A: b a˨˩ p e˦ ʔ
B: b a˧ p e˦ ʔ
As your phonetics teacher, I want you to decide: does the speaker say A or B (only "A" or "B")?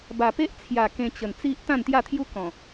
A